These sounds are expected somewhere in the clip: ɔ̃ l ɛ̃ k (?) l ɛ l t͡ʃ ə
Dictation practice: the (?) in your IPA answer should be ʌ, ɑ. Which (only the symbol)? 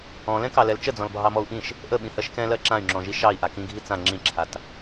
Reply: ɑ